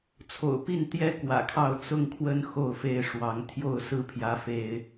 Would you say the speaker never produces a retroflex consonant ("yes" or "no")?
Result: no